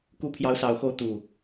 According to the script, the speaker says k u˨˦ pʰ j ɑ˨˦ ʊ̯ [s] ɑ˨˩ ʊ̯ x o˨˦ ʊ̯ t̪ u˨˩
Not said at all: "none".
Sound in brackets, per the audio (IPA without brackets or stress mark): s